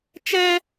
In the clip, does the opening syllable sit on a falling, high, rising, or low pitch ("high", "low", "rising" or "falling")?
high